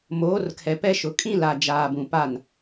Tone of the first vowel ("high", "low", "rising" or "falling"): rising